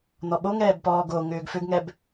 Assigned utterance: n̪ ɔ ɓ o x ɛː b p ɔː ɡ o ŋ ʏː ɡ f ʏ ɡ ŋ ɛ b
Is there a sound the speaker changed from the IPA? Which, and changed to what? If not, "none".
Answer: x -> ŋ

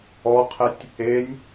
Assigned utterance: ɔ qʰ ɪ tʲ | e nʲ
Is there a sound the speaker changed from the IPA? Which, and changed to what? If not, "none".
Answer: none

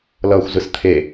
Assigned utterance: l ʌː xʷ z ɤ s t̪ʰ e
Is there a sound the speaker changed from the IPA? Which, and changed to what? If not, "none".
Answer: ɤ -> ɯ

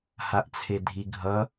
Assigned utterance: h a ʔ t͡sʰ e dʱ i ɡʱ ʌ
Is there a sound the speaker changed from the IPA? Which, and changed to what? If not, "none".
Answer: none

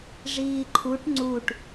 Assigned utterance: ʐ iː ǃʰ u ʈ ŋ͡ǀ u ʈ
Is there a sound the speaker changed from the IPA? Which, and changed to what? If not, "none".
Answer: none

